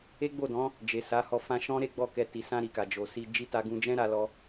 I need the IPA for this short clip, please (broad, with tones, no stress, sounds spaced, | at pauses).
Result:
e˦ ɡ͡b o˦˨ d ɔ̃˨˦ | d͡ʒ e˨ s a˨˦ h ɔ˧ f ã˧ ʃ ɔ̃˦ ɾ e˦ ɡ͡b ɔ˦˨ k ɛ˧ t i˨ s ã˧ ɾ i˨ k a˨ d͡ʒ o˨ s i˧ d͡ʒ i˧ t a˧ ɡ ũ˧ d͡ʒ ɛ̃˦ ɾ a˦ l ɔ˦